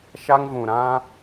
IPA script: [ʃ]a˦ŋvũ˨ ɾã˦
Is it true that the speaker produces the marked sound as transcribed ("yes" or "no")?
yes